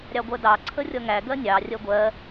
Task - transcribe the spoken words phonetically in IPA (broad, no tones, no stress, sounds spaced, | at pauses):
ɾʲ ɑ ɡʷ ɜ d ɑ ǀʰ ə rʲ ʌ ŋ æ ɡ ɜ nʲ ɑ rʲ ɜ ɡʷ ɜ